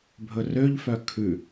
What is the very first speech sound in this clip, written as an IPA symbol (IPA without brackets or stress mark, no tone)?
bʱ